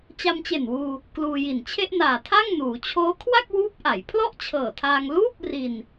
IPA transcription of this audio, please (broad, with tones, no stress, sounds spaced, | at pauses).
t͡ɕ a˧ m t͡ɕ e˨˩ n w uː˧ | k l uː˧ j i˨˩ n t͡ɕʰ e˥˩ ʔ n aː˨˩ tʰ a˥˩ ŋ n uː˩˦ t͡ɕʰ oː˦˥ kʰ w a˥˩ k̚ w uː˦˥ p̚ ʔ a˩˦ j pʰ l ɔ˥˩ ʔ t͡ɕʰ ɤː˨˩ tʰ aː˧ ŋ l uː˥˩ p̚ r i˧ n